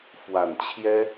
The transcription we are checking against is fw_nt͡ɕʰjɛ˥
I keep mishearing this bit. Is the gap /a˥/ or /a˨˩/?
a˨˩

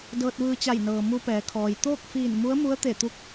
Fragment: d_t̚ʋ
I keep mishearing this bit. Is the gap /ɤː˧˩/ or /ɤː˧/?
ɤː˧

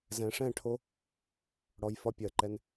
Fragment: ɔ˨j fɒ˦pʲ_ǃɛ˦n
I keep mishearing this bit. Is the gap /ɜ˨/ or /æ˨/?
ɜ˨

